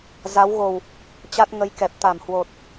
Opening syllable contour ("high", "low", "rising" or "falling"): rising